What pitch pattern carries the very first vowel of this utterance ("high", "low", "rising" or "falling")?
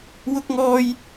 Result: high